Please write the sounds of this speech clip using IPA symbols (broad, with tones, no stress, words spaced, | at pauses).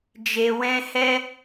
d͡ʒe˨wɛ̃˧hɛ˦